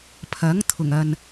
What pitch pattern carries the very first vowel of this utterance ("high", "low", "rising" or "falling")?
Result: rising